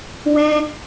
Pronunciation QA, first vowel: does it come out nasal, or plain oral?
nasal